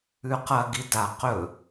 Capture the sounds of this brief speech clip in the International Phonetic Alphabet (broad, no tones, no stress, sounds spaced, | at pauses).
ʉ q ɐ ɡ i d a q ɵ